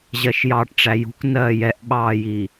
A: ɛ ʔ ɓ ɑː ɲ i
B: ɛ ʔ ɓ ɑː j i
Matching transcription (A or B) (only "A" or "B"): B